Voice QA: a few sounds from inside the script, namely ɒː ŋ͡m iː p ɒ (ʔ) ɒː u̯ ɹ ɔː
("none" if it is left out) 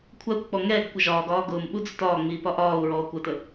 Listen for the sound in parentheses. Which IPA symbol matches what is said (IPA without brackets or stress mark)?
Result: ʔ